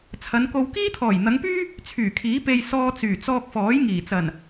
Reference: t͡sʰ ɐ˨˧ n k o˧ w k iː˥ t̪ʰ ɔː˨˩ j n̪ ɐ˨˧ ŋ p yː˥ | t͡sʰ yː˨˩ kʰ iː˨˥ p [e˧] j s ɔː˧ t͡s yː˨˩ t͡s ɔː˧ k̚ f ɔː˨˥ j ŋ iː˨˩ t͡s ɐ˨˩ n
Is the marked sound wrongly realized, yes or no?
no